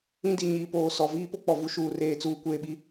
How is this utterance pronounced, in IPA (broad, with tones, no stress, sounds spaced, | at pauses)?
ĩ˦ d i˨ ɲ iː˨ p oː˨ s ɔ˨ v iː˦ p o˦ k͡p ɔ˨ v u˦ ʃ uː˨ r eː˨ t͡s uː˨ kʷ eː˨ ɓ i˨